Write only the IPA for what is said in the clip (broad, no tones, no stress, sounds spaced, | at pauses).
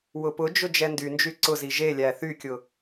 w ʊ p ʊ d͡ʒ ʊ d͡ʒ ɛ n d y n d͡ʒ y ǀ ʊ z i ʒ e lʲ æ θ y kʲ ʊ